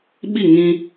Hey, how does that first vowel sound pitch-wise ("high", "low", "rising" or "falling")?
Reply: falling